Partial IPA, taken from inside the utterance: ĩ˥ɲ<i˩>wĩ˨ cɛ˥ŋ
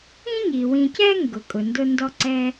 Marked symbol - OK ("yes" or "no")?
yes